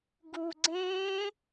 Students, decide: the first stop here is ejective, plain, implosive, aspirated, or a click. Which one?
plain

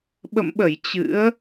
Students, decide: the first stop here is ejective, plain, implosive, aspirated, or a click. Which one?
implosive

